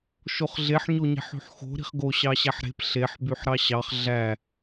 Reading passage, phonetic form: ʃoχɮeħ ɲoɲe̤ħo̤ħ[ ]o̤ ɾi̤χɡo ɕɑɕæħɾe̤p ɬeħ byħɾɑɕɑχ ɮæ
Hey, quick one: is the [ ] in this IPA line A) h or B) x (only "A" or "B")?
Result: B